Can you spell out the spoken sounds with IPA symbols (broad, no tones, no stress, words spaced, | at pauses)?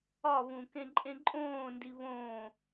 ɒβũ kẽǃʼẽǃʼõːndi βõː